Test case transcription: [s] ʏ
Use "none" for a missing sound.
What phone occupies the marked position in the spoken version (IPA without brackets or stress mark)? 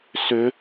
s